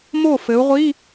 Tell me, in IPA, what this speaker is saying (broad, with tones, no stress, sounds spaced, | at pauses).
m o˥˩ f ɘ˩˧ u̯ ʁʷ i˧˥˧